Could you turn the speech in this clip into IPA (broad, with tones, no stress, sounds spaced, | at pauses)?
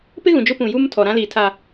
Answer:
p ɪ˦ ɣ ũ˨ d͡ʒ ʊ˦ p ũ˨ j u˦ m tʰ ɔ˨ ɾ ã˦ l iː˨ tʰ a˨